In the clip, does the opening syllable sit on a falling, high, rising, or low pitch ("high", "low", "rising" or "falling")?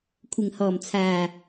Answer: low